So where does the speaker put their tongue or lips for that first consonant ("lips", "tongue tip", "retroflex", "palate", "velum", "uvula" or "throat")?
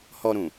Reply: throat